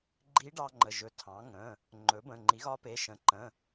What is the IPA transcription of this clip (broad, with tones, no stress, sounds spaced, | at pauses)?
ɡ͡ǃ i˧˥ ɖ ɑ˧ ŋ͡ǃ ə˩˧˩ ʒ ɵ˩˥ tʰ ɑ̃˩˥ ŋ ə̃˩˧˩ | ŋ͡ǃ ɵ˩˥ b ə̃˩˧˩ ŋ͡ǃ i˩˥ ɣ ɒ˧˥ p e˩˧˩ ʃ ə̃˩˥ ǃ ə̃˩˧˩